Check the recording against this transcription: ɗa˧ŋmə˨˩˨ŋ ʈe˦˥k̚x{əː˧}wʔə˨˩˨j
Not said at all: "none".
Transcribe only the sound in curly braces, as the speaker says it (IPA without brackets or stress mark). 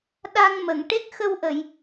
ə˧